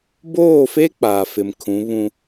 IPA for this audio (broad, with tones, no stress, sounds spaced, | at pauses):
b oː˦˨ f e˦ k͡p aː˨ f ɪ˨ m kʰ ũ˨˦ β ũ˦